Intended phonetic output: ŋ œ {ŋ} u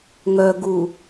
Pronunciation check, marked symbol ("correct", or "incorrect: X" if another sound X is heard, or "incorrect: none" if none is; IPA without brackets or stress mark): incorrect: ɡ